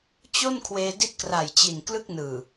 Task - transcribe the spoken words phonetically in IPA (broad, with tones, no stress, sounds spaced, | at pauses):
t͡ɕ o˥˩ n kʰ w eː˧ d i˦˥ t̚ k r a˨˩ j t͡ɕ i˨˩ n k l ɯ˥˩ k̚ n ɯː˨˩